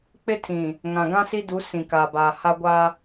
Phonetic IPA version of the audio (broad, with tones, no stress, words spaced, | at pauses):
k͡pɪ˦tʰĩ˨ | ŋã˨ɡã˦si˦du˨˦ sĩ˨ka˨baː˨ ha˦ɡʷa˦